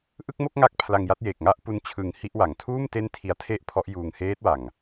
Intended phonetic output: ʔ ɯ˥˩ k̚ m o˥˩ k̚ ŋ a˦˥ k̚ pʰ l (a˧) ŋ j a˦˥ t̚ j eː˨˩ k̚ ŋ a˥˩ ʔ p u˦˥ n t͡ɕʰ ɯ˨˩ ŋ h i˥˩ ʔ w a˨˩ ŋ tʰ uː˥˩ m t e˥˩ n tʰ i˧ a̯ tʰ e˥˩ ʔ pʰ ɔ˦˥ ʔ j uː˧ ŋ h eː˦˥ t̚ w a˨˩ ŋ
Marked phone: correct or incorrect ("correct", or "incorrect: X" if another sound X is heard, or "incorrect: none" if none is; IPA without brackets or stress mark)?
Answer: correct